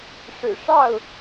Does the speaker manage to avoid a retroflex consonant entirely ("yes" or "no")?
no